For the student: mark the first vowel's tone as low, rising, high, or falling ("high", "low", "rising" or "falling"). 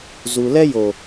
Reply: low